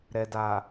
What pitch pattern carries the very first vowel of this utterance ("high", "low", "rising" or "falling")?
low